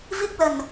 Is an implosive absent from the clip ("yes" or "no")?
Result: yes